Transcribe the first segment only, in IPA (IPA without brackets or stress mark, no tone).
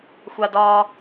xʷ